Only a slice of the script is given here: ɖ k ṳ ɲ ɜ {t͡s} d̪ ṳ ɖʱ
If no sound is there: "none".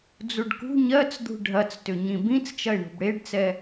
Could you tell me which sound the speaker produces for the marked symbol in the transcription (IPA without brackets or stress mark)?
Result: t͡s